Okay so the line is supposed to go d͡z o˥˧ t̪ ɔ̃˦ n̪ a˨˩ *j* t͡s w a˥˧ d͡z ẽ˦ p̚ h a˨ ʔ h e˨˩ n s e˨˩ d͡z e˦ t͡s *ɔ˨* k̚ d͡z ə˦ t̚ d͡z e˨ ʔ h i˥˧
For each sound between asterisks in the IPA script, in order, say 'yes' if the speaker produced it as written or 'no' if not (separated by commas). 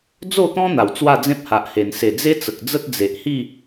no, no